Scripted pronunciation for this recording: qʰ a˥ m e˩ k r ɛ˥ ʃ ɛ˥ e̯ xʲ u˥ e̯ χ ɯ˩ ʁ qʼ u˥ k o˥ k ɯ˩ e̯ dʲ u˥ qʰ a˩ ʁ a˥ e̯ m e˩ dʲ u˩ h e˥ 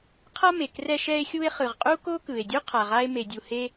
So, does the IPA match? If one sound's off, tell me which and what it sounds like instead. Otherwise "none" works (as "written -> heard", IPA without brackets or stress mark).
none